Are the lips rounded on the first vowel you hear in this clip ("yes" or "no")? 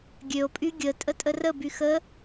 yes